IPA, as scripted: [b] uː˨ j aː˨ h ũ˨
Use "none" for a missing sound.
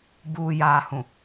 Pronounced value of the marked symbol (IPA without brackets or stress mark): b